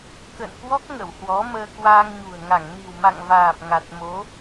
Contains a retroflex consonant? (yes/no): no